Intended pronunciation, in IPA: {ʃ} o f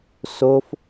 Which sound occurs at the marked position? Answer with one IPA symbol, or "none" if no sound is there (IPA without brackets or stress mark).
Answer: s